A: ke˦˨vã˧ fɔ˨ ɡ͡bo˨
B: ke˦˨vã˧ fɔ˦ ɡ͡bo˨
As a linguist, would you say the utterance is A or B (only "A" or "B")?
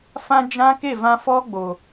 B